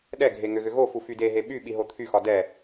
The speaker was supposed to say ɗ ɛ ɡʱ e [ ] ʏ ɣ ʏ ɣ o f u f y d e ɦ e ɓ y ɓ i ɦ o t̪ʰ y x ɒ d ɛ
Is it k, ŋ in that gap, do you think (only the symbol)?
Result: ŋ